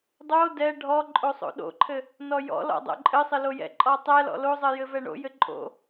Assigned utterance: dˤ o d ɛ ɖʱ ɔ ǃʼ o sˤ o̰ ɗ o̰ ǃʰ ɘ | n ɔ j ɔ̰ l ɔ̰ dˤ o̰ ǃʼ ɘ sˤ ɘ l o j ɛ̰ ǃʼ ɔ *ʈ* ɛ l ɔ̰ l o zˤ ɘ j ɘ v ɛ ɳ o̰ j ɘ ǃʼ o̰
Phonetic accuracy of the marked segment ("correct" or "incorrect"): incorrect